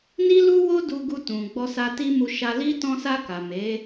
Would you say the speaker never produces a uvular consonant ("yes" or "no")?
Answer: yes